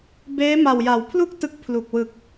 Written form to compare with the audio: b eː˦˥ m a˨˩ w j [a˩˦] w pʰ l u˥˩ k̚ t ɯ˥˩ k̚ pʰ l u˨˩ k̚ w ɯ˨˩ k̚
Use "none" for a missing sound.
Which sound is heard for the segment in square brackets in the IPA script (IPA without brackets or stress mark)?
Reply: a˩˦